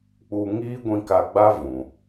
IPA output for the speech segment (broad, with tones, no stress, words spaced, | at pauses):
k͡pu˧ ŋiː˦ɡʷĩ˧ka˧ɡ͡ba˦ vũ˨